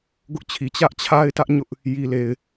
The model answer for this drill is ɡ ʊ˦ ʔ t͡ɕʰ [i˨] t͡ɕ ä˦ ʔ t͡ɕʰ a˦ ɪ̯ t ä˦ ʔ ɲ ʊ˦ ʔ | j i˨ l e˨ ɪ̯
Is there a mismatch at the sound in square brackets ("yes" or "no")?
no